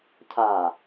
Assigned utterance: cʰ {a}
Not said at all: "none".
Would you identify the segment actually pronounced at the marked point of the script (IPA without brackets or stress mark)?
a